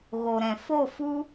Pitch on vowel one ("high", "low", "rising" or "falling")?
low